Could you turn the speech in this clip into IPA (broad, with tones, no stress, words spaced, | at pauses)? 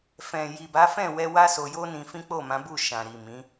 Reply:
fɛ̃˨ ji˨ba˨˦fɛ̃˦˨wɛ˧ wa˦so˧jo˦nĩ˧ fĩ˦k͡po˦˨mã˨˦bu˦˨ ʃã˨ ɾi˨mĩ˨˦